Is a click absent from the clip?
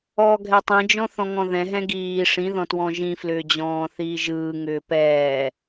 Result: yes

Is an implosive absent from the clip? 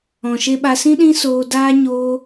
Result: no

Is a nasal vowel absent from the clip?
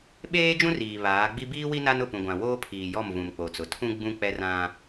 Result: no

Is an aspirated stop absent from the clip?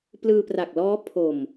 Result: no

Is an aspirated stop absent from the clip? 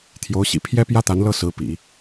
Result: no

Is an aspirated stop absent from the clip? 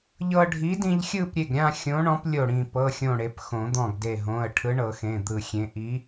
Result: no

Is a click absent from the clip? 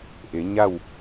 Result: yes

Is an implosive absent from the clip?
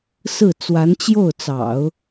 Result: yes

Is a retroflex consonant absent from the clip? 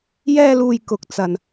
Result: yes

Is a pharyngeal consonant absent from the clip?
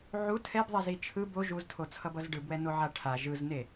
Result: no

